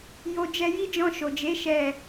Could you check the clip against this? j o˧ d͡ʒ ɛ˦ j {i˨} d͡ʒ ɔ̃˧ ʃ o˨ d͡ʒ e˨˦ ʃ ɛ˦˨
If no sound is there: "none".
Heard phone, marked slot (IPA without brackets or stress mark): i˦